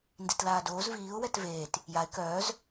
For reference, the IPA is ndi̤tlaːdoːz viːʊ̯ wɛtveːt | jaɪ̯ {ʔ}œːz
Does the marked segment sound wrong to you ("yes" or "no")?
yes